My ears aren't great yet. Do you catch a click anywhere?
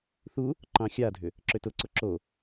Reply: yes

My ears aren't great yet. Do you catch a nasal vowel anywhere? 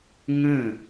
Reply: yes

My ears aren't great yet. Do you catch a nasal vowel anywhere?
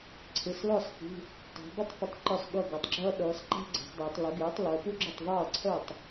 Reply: no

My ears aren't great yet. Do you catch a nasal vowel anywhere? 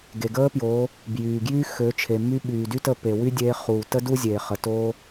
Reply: no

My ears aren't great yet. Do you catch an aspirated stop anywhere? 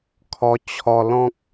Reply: yes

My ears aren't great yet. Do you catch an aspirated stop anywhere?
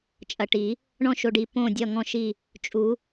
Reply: no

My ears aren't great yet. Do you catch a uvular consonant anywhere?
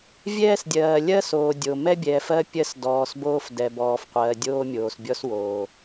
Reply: yes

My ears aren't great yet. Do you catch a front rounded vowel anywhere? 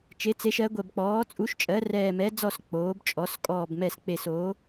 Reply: no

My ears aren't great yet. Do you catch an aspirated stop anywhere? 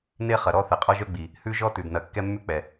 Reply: no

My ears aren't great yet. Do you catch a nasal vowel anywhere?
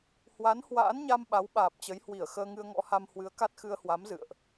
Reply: no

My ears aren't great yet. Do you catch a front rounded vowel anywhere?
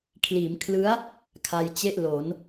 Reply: no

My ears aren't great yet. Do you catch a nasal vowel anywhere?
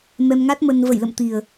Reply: no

